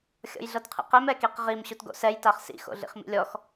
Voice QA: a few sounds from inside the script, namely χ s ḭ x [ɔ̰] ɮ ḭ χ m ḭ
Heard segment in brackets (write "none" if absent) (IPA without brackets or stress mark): o̰